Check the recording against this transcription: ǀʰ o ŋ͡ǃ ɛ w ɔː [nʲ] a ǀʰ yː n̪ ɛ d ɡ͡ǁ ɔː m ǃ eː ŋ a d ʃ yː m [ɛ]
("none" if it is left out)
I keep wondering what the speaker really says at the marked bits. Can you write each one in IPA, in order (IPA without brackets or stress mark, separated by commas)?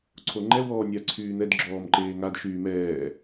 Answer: nʲ, ɛː